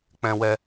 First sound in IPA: k͡p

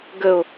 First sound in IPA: ɡ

